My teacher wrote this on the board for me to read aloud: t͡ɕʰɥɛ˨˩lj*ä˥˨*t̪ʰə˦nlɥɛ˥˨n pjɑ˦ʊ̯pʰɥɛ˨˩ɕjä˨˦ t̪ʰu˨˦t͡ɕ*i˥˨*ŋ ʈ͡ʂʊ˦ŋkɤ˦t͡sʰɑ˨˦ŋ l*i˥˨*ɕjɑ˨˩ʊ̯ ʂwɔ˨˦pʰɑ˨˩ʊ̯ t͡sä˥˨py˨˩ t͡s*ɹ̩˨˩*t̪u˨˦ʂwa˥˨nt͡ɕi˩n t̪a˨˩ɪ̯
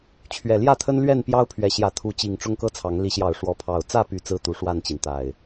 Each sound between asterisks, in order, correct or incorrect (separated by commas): correct, incorrect, incorrect, incorrect